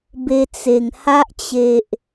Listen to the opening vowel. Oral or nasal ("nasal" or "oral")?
oral